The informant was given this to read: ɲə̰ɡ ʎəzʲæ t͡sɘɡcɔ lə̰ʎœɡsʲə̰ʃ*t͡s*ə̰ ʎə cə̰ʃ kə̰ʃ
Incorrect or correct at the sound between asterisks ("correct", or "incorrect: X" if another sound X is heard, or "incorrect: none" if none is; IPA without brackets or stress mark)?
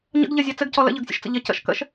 correct